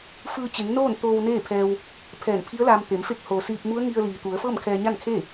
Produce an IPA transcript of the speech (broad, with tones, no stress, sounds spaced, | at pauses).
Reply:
f ɯː˧ t͡ɕ e˩˧ ŋ n oː˥˨ n t̪ oː˧ w n eː˥˨ pʰ ɛː˧ w | pʰ ɛː˧˩ n pʰ i˧˥ ə̯ l aː˧ m t̪ e˩˧ m f e˧˥ k̚ h oː˩ s iː˧ p̚ m u˧˥ ə̯ ŋ i˧ ə̯ l iː˩ t̪ u˩˧ ə̯ f ɤː˥˨ m kʰ ɛː˧ ɲ a˥˨ n kʰ e˥˨